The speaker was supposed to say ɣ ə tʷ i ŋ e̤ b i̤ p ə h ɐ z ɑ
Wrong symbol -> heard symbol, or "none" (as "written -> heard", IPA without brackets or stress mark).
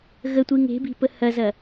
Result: ɑ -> ɐ